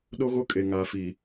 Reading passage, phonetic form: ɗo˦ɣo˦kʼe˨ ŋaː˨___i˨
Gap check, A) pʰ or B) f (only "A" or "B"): B